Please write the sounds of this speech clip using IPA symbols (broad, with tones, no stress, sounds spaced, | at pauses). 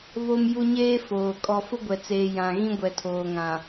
β o˦ m j u˦ ɲ eː˦ f oː˨ kʼ ɔ˨ f ʊ˦ ɡʷ ɛ˨ t͡s eː˨ j ã˨ ɣ ĩ˦ ɡʷ ɛ˨ tʰ oː˨ ŋ ã˨